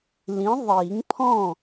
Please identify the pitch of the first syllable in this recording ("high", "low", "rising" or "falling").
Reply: rising